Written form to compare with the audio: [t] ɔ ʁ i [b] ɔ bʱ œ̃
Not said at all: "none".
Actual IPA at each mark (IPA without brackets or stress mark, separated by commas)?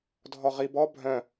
dʱ, b